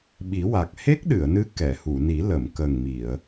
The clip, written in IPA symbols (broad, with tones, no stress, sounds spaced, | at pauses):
ɓ i˨˩˦ w a˨˩ k̚ h e˦˥ k̚ ɗ ɨ˨˩˨ ə̯ n ɨ˧˥ k ɛ˨˩˨ h u˨˩˨ n i˨˩˦ l ə˨˩˨ m k ə˨˩ ŋ m i˨˩˨ ə̯